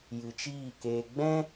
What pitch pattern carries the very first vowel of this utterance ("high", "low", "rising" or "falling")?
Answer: low